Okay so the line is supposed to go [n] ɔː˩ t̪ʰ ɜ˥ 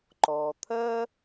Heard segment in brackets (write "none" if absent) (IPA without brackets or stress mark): ǃ